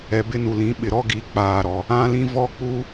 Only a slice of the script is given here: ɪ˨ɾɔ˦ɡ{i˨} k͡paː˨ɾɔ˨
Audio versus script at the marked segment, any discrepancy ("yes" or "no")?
no